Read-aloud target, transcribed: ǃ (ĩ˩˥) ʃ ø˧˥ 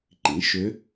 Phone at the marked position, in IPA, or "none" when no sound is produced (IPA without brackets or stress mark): ĩ˩˥